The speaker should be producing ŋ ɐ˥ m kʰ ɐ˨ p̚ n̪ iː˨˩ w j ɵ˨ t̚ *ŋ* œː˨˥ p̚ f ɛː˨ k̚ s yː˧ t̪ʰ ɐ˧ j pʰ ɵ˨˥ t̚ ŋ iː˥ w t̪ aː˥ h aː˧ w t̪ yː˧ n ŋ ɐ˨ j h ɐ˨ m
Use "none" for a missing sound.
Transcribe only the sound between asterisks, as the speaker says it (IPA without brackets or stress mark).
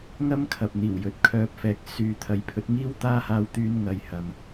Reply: kʰ